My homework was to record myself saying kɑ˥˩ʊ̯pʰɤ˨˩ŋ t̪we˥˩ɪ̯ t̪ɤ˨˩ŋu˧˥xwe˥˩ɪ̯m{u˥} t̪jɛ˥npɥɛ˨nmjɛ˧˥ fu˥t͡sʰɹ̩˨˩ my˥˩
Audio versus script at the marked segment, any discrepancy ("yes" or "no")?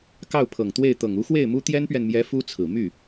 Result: no